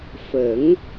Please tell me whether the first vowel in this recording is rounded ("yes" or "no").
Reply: no